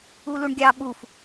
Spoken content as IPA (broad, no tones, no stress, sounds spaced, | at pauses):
u l u ɳ ɡʲ ɑ ɓ u f